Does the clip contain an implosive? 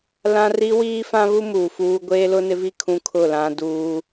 no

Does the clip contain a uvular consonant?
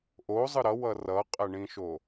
yes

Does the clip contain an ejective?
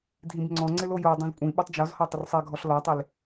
yes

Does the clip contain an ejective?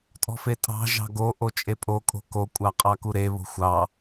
yes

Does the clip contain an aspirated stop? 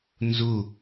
no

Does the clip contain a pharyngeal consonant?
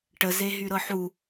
yes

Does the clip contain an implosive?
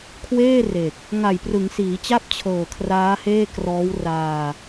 no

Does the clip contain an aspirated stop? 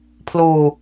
yes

